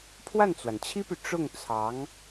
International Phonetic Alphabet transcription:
pʰ w a˥˩ n t͡s w a˩ n t͡ɕʰ i˥ p y˨ ʈ͡ʂ ʊ˥˩ ŋ t͡sʰ ɑ˧˥ ŋ

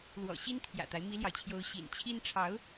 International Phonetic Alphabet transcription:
l w ɔ̰˨˩ ɕ i˥ n t̪ʰ j ä̰˨˩ t̪ a˦ ɪ̯ m i˥ l j ɑ˨ ʊ̯ t͡ɕʰ j o˥ ʊ̯ ɕ ḭ˨˩ n t͡ɕʰ i˥ n ʈ͡ʂʰ ɑ˧˥ ʊ̯

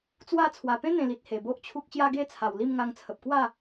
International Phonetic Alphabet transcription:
t͡s w a˥˧ t͡sʰ w a˨˩ p ẽ˦ n̪ ẽ˨˩ l i˨ t̚ h e˨˩ b o˦ ʔ t͡ɕʰ u˦ k̚ ɕ j a˦ ɡ e˥˧ t͡sʰ a˨˩ w l i˥˧ m ŋ a˧ ŋ t͡sʰ ə˨ p̚ k w a˥˧

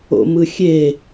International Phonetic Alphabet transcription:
o̰ m ɯ xʲ e

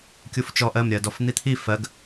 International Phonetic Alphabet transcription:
kʲ u f t͡ʃ ɔ ʔ ɜ m ɾʲ ɜ d ɔ f n̪ i t̪ʰ i f ɜ ɡ

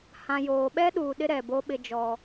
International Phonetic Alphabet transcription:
h ã˨ j oː˨ ɓ ɛ˦ ɗ uː˨ ɗ ɪ˦ ɾ ɛ˨ b o˦ ɓ ɪ˦ d͡ʒ ɔ˦

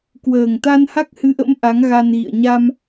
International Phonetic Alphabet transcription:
k w əː˨˩ ŋ t̪ a˧ n h a˦˥ k̚ h ɨ˨˦ ʔ ə̰˧˥ m ʔ a˨˦ ŋ ɣ a˧ n ɣ ḭ˧˨ ə̯ ɲ a˧ m

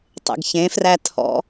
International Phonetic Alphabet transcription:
tˤ ḛ ɡ ç ẽ f r æ tʰ ɔ̰

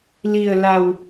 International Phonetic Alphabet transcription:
l i˩ ə̯ l a˩ w

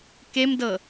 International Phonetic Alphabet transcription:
k e m d ɤ

